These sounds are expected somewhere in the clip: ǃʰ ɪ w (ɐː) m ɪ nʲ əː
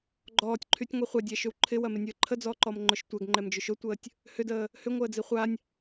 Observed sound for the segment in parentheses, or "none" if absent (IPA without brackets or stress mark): ɐ